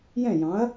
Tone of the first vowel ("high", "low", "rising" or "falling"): falling